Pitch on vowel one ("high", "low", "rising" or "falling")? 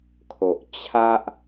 low